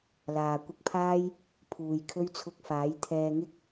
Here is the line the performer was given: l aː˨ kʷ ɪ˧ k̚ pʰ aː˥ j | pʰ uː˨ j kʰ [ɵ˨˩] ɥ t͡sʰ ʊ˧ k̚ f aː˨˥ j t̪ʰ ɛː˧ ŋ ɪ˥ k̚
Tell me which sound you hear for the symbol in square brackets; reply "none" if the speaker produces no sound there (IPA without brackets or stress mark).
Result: ɵ˥